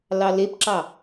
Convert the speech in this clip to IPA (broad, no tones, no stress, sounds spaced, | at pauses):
l ɑ l e p ǁ ɑ